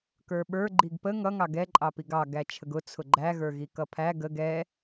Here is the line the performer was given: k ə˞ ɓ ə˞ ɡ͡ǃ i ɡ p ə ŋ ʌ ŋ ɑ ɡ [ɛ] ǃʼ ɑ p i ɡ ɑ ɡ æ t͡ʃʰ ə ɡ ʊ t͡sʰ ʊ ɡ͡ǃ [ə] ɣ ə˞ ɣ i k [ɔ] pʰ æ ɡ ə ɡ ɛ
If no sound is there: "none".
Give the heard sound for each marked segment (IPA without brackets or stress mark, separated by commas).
ɛ, æ, ʌ